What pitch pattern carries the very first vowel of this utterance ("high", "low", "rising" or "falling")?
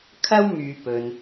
high